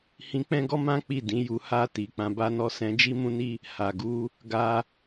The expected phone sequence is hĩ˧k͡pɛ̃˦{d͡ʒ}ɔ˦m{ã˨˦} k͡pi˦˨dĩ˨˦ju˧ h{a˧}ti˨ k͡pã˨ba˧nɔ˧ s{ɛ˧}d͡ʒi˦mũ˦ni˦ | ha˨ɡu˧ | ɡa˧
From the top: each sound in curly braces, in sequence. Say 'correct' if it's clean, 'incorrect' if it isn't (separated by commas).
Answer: incorrect, incorrect, correct, incorrect